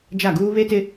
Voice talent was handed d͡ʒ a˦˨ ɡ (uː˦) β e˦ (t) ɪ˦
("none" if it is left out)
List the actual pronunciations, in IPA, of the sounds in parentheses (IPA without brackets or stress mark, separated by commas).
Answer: uː˦, t